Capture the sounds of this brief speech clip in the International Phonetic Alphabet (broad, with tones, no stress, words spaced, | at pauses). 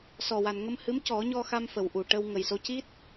sɔ˨˩wa˨˩nŋə˧m hɨ˧˥mcɔ˨˩˦ɲɔ˧xa˧m fə˨˩wʔu˨˩ʈə˧w ŋə˨˩jso˧˥ ci˦˥t̚